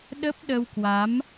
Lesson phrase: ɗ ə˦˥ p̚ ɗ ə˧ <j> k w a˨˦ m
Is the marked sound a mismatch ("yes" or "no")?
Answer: yes